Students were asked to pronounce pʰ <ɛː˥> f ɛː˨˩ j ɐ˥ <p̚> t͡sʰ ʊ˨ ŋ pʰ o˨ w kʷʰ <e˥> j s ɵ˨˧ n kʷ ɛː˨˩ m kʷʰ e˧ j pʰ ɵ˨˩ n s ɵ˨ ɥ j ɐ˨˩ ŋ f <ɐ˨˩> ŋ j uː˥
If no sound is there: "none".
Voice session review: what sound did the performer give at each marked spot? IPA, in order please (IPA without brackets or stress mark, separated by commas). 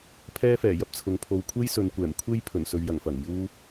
ɛː˥, p̚, e˥, ɐ˨˩